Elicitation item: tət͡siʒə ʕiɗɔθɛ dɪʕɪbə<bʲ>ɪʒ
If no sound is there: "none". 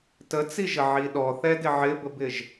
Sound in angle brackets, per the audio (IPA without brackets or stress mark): b